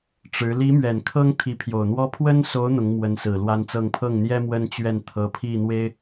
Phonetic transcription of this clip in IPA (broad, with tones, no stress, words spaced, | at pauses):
ʈ͡ʂɻ̩˧˥ li˧˥mɥɛ˨˩n kʰɤ˥ŋ t̪ʰi˧˥pʰjo˨˩ʊ̯n̪wɔ˥ pʰwə˥nso˧˥ʊ̯ n̪ʊ˧˥ŋmwə˧˥nsɹ̩˨˩ lwa˥nt͡sɤ˥˧ŋ pʰɤ˥˩ŋn̪jɛ˥ mwə˥nt͡ɕɥɛ˥˩nt̪ʰɤ˧˥ pʰi˥˩n̪we˥ɪ̯